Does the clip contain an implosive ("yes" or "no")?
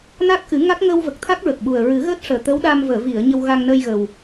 yes